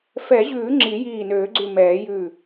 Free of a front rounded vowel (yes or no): no